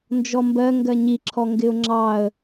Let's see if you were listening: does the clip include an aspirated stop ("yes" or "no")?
yes